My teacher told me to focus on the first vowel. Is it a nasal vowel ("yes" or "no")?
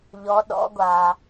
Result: no